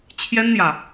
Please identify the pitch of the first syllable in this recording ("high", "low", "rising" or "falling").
high